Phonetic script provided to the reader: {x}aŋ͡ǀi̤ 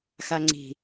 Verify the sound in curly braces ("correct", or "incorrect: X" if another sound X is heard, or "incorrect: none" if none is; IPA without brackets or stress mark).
correct